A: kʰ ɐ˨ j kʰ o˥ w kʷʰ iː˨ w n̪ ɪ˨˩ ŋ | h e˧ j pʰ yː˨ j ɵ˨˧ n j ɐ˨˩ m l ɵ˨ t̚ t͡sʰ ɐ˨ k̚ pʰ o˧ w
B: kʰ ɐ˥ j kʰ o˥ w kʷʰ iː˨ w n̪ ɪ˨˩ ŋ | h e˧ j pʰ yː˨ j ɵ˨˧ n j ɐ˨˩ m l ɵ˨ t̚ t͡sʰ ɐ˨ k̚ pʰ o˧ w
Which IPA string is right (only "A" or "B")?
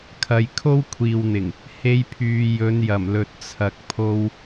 A